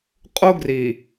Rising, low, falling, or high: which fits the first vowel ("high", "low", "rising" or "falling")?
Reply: high